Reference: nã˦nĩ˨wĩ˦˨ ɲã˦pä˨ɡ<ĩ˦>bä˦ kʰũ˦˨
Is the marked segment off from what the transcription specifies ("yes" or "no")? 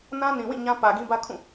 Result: no